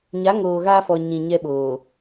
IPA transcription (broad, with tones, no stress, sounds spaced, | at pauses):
ɲ a˨˦ ŋ oː˨ ɣ aː˦ f ɔ˨ ɲ ĩ˨ ɲ ɛ˦ ɓ oː˨